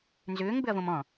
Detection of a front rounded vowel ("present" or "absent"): present